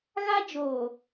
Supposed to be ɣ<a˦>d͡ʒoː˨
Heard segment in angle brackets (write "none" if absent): a˦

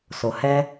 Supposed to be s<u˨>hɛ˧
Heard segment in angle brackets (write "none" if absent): o˨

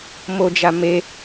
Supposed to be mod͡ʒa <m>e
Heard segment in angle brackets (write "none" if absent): m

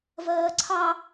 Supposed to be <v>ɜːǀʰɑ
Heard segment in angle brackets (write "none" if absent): v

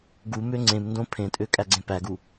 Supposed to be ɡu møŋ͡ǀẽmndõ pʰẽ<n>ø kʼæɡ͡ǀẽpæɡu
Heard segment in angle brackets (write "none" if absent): tʼ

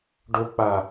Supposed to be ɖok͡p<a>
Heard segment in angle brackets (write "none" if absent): a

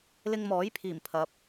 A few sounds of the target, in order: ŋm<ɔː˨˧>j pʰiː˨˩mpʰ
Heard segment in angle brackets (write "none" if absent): ɔː˨˥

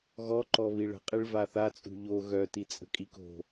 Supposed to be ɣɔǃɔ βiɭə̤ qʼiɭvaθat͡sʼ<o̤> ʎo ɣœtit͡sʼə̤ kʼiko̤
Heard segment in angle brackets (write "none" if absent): ṳ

